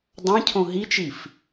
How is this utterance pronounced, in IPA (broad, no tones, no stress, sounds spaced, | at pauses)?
dˤ ɑ̃ cʰ õ ɦ i t͡ʃ i f